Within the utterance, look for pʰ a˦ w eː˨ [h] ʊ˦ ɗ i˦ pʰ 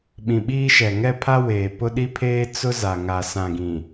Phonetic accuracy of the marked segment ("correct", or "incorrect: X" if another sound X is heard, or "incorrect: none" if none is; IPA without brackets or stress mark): incorrect: p